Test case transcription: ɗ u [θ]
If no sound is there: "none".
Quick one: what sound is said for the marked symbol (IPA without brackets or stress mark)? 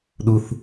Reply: θ